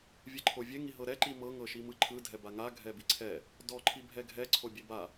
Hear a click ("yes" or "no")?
yes